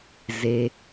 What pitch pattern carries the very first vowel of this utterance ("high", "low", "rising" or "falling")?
low